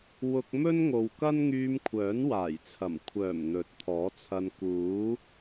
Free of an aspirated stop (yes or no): no